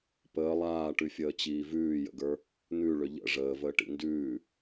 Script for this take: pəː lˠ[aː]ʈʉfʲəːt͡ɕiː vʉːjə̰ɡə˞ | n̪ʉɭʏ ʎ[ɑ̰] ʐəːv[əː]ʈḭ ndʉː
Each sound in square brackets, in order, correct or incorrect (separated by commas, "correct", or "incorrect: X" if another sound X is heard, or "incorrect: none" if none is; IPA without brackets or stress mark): correct, incorrect: ə̰, correct